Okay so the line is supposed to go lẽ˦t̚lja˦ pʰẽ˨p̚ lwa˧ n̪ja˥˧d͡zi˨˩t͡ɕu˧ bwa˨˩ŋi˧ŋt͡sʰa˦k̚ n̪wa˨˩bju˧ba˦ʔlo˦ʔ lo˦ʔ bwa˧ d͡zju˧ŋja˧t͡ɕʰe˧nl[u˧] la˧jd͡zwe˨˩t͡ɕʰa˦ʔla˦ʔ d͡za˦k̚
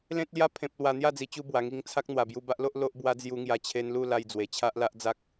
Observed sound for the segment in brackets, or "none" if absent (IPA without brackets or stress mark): u˥˧